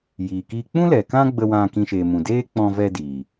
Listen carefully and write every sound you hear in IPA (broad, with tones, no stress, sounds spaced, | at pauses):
j iː˨ k iː˧ k͡p ũ˦ l ɛ˨ k ã˦ ɡ͡b ə˧ w ã˧ k ĩ˧ ʃ eː˨ m ũ˨ d eː˦ k͡p ɔ̃˧ v ɛ˧ d iː˨